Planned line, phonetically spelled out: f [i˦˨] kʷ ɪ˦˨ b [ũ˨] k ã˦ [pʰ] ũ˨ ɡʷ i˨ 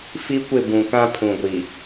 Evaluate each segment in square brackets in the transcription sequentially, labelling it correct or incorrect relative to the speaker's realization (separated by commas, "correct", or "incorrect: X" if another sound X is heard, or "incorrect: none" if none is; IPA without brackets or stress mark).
incorrect: i˦, correct, correct